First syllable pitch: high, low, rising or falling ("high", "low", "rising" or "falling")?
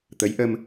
rising